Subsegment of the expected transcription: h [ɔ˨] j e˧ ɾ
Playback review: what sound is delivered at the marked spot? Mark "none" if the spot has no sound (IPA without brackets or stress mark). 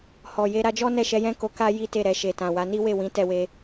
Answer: ɔ˨